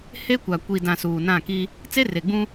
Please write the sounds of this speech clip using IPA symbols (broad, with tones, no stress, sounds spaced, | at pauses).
h e˦ kʷ a˨ kʷ i˨ d ã˨ s uː˨ n ã˦˨ k i˦ | t͡s e˦ r e˨ ɡ͡b ũ˦